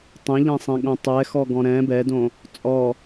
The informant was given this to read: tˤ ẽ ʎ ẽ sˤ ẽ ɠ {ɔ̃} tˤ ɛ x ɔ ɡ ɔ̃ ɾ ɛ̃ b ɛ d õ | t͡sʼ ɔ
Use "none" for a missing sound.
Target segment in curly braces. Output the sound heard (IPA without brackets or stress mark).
õ